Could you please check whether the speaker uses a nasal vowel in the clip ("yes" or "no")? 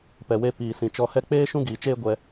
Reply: yes